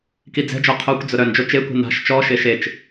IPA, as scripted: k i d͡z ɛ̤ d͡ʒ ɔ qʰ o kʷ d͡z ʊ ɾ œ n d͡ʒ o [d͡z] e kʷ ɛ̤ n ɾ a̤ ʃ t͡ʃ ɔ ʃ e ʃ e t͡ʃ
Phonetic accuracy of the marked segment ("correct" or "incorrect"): incorrect